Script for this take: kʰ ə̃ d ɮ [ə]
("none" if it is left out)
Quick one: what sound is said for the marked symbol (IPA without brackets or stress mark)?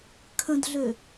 ø